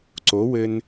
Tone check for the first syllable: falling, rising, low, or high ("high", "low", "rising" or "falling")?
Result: rising